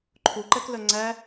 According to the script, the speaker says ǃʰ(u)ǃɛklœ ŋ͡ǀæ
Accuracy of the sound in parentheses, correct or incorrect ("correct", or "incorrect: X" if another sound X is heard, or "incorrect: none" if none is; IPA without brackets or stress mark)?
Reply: correct